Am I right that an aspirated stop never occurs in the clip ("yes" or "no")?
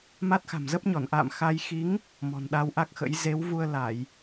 yes